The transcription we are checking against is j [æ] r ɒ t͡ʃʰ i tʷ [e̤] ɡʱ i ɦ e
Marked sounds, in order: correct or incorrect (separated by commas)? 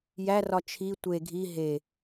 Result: correct, incorrect